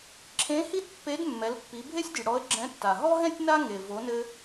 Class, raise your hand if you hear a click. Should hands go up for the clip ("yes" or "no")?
yes